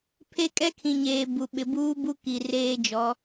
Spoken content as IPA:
pʰ e˦ kʼ ɛ˦ kʰ ĩ˨ ɲ eː˨ b u˨ ɓ ɪ˨ b uː˦ b u˦ k i˨ r eː˦ d͡ʒ ɔ˨˦

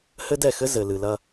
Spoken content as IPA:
h ɘ˦ d ɛ˦˨ x ɘ˦ z ɘ˨ l ɨ˨ l ɐ˦

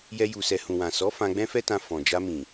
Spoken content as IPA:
j ɛ˦ j u˧ s ɛ˧ h ũ˨ w ã˨ s ɔ˨˦ f ã˧ ɡ͡b ɛ̃˦ f ɛ˦ t ã˧ f ɔ̃˨ d͡ʒ a˧ m ĩ˨

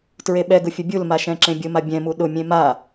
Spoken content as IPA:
t ɹ e ɓ ɛ ɡ ʊ fʲ ʊ bʲ u l m a ʃ ɛ̃ ǁ ẽ bʲ ʊ m a bʲ ɛ̃ m u ɗ ʊ mʲ ẽ m a

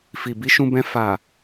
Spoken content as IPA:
f i˨ b i˨˦ ʃ ũ˧ b ɛ̃˧ f a˨

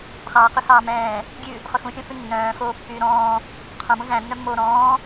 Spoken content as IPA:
χ ɑː q y h ɑː m ɛ̃ː | ɡʲ ʉ | χ ɵ x ũ xʲ õ f ʉ nː œ̃ː x oː pː yː ɾ ɔ̃ː | qʰ õ m ũ z æ̃ nː œ mː oː ɾ ɔ̃ː

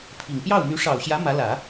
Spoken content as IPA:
pʰ i˨˩ ŋ p j ɑ˥˩ ʊ̯ m y˧˥ ʂ ɑ˨˩ ʊ̯ ɕ j ä˧˥ m ä˧˥ l ä˨˩˦

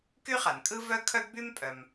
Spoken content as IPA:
k y˥ χ a˩ n kʼ ɯ˥ v œ˥ kʰ œ˥ ɡ b y˥ m pʼ œ˩ m

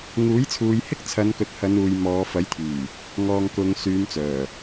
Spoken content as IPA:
ŋ uː˨˥ j t͡sʰ uː˨˧ j h ɪ˥ k̚ t͡sʰ ɐ˨˧ n k ɵ˨˥ t̚ h ɐ˨˧ n uː˨ j m ɔː˨˧ f ɐ˨˥ j t̪ʰ yː˨˩ | ŋ ɔː˨ ŋ k ʊ˨˧ ŋ s yː˨˧ m t͡s œː˨˩

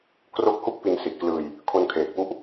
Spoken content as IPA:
k r o˦˥ k̚ h u˥˩ k̚ p i˧ n s i˨˩ t̚ k l ɯː˧ j | kʰ o˧ n kʰ eː˨˩ k̚ p u˦˥ ʔ

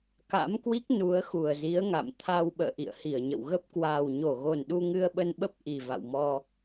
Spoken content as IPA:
k a̰˧˥ m k w i˦˥ k̚ n u˨˦ ə̯ x u˨˩ ə̯ z i˨˦ ə̯ ŋ a̰˧˨ m t̪ʰ a˧ w ɓ ə̰ː˧˨ ʔ ḭ˧˨ ə̯ h i˧˩ ə̯ ɲ ə̰˧˨ w ɣ ə˦˥ p̚ k w aː˨˩ w ɲ o˧˩ ɣ o˨˩ n ɗ u˧ ŋ ɨ˧ ə̯ ɓ ə˧ n ɓ ə˦˥ p̚ ʔ i˨˩ v a̰˧˨ w m ɔ˧

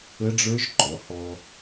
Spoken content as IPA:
ə˦˥ ɖ͡ʐ ə˞˦˥ ʒ ǃ ɔ˩˧ h ɔ˧

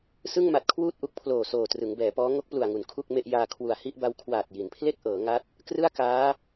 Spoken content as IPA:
s ɯ˥˩ ŋ m a˨˩ t̚ kʰ w uː˥˩ t̚ ʔ u˦˥ k̚ pʰ l oː˨˩ s oː˨˩ t r ɯ˩˦ ŋ b ɛː˩˦ p ɔː˦˥ ŋ o˦˥ k̚ p l u˨˩ a̯ ŋ u˩˦ n kʰ u˥˩ k̚ m e˥˩ ʔ j aː˧ kʰ w u˨˩ a̯ h i˥˩ ʔ b a˦˥ w kʰ w aː˨˩ t̚ j i˩˦ n pʰ l e˥˩ k̚ ʔ ɤː˩˦ ŋ a˦˥ t̚ | k r ɯ˥˩ a̯ k aː˦˥

